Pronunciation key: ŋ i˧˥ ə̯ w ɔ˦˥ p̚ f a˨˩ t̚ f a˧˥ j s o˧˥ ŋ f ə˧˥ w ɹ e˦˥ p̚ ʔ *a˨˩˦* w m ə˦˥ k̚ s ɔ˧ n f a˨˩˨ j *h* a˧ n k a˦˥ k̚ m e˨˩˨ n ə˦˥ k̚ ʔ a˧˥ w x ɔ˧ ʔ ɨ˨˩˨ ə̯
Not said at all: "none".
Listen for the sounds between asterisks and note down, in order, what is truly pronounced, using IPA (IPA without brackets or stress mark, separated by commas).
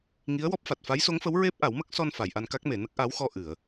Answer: a˨˩˦, ʔ